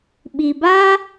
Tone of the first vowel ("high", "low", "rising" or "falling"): low